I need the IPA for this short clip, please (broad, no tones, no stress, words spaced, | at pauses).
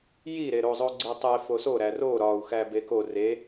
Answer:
jiɾeɾozˤo ɡ͡ǀetˤe foso ɾæro ɾɒu̯xæ beko re